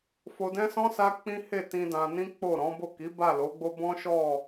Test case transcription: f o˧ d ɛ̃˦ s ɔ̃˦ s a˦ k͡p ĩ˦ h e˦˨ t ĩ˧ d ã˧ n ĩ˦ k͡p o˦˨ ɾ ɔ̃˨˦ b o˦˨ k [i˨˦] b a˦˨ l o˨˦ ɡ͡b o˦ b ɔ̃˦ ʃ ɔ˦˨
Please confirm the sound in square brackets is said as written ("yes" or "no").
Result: yes